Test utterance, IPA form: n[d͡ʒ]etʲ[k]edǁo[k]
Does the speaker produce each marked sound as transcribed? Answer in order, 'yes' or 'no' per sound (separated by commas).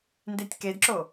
no, yes, no